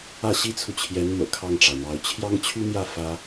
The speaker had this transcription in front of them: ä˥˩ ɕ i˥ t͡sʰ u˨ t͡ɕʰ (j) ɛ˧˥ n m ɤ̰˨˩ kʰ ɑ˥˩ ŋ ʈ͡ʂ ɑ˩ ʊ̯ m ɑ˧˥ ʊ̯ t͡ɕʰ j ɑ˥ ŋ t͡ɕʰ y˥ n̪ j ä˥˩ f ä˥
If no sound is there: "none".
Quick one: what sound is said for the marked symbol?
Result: j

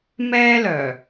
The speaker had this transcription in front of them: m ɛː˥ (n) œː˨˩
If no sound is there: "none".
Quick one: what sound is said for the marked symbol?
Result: l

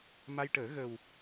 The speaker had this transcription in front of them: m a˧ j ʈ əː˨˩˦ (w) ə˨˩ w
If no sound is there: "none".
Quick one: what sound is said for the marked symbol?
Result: ɣ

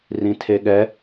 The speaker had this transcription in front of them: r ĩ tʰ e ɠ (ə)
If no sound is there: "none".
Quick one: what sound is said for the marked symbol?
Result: ɛ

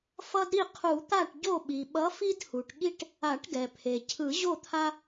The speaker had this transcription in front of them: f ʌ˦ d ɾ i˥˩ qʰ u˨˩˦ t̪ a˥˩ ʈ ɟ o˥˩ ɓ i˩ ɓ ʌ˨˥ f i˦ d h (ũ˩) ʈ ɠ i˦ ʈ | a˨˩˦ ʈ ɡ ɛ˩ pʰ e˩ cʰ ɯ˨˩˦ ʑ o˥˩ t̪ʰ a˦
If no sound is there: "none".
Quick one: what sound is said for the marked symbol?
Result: u˩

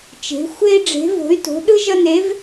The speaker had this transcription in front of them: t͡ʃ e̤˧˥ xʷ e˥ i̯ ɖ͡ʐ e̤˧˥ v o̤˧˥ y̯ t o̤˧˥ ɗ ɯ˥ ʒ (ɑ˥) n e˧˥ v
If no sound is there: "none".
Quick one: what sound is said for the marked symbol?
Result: ʌ˥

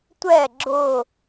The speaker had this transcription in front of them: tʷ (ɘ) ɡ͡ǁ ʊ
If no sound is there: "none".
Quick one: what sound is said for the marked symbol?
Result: ɛ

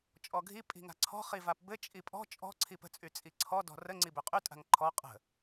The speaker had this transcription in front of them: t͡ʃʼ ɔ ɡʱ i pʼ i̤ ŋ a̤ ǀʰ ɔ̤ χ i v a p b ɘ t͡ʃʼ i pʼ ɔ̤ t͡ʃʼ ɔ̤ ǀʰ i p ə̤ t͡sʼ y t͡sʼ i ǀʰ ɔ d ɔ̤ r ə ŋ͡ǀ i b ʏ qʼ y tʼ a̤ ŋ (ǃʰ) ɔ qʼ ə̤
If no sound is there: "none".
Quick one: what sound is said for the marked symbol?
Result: ǃʰ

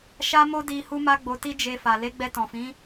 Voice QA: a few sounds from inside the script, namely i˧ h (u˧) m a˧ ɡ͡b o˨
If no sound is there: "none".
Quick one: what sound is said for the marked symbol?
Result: u˧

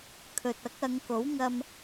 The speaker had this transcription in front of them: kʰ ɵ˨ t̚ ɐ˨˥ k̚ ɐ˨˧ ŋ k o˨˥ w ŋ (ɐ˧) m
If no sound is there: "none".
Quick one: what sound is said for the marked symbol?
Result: ɐ˧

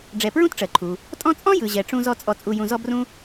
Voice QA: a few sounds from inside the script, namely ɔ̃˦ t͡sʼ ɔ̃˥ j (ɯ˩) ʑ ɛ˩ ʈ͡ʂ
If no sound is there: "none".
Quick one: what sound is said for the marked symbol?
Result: ɯ˩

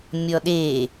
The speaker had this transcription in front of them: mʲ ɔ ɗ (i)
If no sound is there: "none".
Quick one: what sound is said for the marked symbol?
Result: e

